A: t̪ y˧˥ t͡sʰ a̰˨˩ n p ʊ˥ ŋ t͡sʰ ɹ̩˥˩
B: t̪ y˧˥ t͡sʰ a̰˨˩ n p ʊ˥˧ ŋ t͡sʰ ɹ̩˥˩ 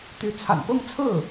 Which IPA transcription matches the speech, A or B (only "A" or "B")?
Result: B